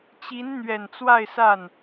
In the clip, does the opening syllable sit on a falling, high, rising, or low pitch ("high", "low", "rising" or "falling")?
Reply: rising